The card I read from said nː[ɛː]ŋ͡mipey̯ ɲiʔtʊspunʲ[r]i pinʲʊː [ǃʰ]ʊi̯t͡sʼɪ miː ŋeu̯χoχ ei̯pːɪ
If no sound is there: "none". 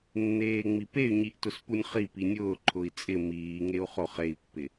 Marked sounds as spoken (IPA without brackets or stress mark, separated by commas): eː, χ, ǃʰ